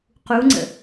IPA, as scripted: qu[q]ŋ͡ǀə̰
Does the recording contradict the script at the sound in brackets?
yes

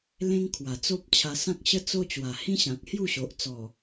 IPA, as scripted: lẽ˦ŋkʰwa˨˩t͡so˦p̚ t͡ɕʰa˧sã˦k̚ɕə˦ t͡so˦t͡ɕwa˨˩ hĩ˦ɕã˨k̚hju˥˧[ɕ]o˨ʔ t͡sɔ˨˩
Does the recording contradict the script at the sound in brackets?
no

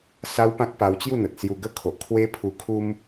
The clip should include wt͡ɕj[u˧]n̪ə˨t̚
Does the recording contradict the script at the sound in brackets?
yes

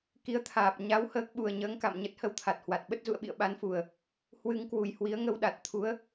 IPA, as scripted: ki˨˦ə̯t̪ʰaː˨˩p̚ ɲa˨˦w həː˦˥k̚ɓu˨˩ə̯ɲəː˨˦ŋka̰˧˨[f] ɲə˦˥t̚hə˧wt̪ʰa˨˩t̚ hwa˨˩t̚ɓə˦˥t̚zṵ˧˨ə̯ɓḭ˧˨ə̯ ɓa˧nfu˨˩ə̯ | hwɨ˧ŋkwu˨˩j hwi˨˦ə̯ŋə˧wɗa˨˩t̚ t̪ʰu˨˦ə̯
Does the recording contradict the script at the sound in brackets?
yes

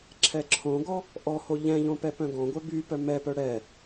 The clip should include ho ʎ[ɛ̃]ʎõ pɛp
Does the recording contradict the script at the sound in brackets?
no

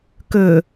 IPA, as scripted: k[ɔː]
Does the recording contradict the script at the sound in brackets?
yes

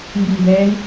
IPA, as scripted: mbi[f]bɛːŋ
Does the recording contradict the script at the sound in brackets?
yes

